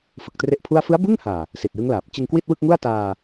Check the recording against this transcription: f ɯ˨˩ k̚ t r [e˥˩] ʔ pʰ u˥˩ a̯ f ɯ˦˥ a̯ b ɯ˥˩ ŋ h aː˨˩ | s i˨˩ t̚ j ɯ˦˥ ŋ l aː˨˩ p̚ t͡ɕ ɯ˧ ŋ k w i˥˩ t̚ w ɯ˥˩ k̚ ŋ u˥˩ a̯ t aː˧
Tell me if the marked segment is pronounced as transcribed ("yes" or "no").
yes